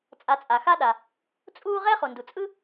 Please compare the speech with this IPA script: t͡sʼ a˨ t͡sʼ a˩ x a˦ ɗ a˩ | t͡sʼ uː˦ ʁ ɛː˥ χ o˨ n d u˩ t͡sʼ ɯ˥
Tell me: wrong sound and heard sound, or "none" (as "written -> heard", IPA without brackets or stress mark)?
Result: o˨ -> o˩